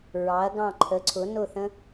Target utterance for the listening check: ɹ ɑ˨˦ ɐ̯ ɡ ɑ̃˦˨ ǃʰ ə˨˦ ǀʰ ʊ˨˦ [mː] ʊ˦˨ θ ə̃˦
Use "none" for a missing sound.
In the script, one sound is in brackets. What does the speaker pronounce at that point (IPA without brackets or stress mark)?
n